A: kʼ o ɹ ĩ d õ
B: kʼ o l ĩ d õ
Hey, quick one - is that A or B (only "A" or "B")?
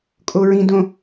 A